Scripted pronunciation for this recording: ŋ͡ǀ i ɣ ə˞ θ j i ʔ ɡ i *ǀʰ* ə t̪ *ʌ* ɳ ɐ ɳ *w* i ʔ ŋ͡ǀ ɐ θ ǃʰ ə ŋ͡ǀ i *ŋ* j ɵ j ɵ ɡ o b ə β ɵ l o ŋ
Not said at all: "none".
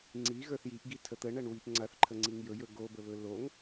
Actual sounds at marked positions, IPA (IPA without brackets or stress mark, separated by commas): tʰ, ə, w, ŋ